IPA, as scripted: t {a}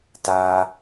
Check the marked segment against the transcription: correct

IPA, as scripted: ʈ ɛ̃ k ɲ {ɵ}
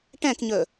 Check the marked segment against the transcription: correct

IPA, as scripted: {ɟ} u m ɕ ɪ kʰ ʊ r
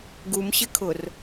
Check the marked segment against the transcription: incorrect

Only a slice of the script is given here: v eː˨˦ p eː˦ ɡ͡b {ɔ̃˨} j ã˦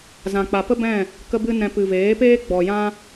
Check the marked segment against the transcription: incorrect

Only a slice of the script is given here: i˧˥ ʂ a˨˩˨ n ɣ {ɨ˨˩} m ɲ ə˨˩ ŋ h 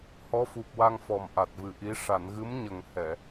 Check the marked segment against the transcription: incorrect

